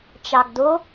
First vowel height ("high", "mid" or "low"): low